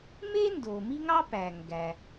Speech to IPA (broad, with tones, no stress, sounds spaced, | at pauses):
m e˥ n d o˩ m i˥ ŋ ɑ˥ p æ˩ ŋ ɡ æ˩